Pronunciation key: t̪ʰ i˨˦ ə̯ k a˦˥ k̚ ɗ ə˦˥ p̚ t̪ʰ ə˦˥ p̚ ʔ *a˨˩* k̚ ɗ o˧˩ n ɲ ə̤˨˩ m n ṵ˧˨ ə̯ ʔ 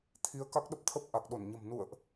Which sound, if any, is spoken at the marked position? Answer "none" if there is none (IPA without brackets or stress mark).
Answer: a˨˩